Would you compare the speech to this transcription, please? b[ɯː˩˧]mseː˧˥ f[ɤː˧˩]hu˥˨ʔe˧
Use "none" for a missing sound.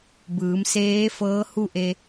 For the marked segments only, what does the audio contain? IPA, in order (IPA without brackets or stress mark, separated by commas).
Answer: ɯː˩˧, ɤː˧˥